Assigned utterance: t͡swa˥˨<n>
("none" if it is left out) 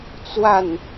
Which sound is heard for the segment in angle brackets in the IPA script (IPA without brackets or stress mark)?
n